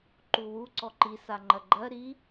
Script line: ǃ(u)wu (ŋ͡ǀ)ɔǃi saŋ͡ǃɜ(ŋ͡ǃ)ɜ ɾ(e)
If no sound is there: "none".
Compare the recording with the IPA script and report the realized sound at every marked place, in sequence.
u, ǀ, ɡ͡ǃ, i

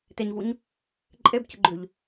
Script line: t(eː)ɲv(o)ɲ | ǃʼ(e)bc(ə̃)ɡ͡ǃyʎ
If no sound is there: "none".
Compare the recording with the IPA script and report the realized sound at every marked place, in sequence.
e, u, e, ə

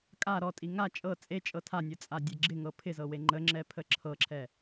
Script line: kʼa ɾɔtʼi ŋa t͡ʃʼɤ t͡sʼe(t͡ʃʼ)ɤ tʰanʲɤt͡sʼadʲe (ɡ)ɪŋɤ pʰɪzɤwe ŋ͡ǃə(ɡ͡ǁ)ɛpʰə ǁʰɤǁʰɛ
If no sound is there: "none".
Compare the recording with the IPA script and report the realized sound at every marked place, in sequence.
t͡ʃʼ, ɡ͡ǁ, ŋ͡ǁ

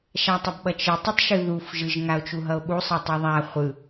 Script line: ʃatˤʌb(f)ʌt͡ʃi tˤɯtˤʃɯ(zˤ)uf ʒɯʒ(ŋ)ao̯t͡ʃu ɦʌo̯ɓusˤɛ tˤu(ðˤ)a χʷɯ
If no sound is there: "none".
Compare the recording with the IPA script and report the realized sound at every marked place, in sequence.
ɓ, ð, ŋ, ðˤ

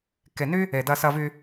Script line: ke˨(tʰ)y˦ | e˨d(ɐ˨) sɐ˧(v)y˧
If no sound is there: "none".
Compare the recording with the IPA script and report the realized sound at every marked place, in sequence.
n, ɐ˧, v

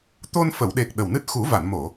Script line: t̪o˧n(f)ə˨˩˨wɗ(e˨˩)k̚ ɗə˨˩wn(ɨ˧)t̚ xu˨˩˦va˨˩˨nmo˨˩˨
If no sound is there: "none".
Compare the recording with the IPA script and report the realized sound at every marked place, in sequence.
f, e˨˩, ɨ˦˥

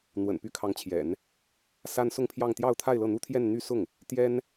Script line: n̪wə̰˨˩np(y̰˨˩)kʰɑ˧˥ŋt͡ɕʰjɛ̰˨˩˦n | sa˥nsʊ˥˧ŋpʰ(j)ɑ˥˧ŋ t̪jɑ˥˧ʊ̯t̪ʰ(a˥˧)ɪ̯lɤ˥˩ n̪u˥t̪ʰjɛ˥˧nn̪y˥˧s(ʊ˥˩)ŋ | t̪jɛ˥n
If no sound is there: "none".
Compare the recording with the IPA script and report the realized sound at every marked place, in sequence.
y˥, j, a˥˧, ʊ˥˩

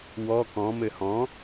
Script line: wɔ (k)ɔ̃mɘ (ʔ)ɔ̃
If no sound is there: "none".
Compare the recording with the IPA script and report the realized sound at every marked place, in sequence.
k, h

